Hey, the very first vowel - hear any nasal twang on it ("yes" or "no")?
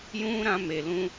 yes